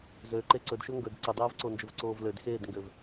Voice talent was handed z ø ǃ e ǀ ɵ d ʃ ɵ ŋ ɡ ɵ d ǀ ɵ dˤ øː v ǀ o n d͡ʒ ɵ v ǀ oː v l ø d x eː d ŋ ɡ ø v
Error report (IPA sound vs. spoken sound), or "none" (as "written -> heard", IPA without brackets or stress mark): none